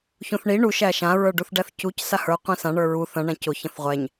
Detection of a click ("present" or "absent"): absent